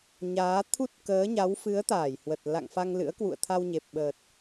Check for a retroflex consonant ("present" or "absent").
absent